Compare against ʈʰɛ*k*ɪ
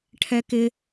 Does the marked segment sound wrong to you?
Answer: no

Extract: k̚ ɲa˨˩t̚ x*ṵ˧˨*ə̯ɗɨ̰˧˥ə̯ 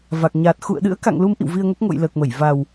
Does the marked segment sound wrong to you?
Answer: no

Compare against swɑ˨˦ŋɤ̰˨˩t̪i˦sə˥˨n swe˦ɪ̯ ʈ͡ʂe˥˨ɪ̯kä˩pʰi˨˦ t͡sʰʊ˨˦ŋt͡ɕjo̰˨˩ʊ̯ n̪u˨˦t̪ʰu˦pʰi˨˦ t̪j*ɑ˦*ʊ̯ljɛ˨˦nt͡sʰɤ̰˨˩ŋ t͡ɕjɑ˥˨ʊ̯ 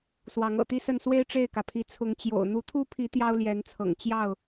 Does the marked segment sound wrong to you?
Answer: no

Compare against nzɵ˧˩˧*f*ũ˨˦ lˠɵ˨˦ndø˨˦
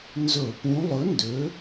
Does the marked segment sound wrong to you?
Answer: yes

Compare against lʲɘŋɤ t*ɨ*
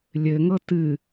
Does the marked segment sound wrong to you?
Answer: no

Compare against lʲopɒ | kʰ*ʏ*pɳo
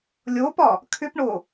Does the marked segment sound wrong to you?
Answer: no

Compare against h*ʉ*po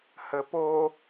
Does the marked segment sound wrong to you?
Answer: yes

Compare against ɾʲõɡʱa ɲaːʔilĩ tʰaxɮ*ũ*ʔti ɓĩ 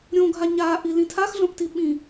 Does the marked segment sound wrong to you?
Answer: yes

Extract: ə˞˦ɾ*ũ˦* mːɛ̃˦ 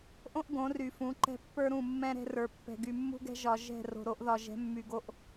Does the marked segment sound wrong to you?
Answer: yes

